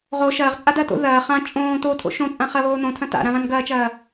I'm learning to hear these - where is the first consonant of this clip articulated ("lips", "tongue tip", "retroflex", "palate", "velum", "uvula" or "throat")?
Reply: uvula